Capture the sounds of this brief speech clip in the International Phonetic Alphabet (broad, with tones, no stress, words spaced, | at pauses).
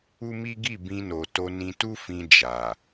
u˦mi˦ ɡi˦˨ bĩ˧no˨to˧nĩ˧ tu˦ fĩ˧ d͡ʒa˨